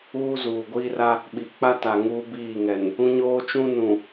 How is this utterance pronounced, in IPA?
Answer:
uː˦ z uː˨ ɡʷ iː˦ r a˦ | ɓ i˨ k͡p a˦ t a˨ ŋ uː˦ b iː˦˨ ŋ ɛ˨ n | ũ˦ ɲ oː˦ t͡ʃ ũ˦ n ũ˨

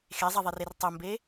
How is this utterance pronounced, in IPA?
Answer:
x e zˤ ɛ ðˤ i r e r tˤ ʊ m b e

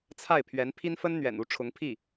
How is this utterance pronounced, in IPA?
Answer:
t͡sʰ a˥˩ ɪ̯ pʰ ɥ ɛ˧˥ n pʰ i˥ n f ə˥ n n̪ ɥ ɛ̰˨˩ n u˧˥ ʈ͡ʂʰ ʊ˧˥ ŋ pʰ i˥˩

